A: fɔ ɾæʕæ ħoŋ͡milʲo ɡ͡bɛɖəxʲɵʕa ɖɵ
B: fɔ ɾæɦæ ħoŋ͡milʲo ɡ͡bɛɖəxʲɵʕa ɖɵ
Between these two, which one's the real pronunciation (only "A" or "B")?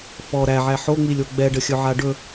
A